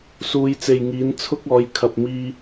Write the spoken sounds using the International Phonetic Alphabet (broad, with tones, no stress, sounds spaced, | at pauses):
s uː˨˧ j t͡s e˨ j ŋ iː˨˥ n t͡sʰ ʊ˥ k̚ ɔː˨˥ j kʰ ɐ˨ p̚ m iː˧